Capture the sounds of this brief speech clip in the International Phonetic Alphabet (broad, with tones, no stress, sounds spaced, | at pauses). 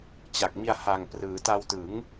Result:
t͡ɕ a˨˩ k̚ m i˧ a̯ h a˨˩ ŋ p r ɯː˩˦ t a˧ w t ɯ˩˦ ŋ